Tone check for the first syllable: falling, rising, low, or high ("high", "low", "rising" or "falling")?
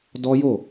high